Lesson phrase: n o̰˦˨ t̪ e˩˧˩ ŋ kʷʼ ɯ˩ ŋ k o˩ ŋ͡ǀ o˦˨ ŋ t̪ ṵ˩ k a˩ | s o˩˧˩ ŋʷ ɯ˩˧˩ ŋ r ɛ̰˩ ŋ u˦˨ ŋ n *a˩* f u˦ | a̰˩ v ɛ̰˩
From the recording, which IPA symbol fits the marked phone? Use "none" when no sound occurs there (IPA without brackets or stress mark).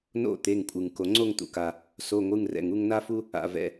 a˦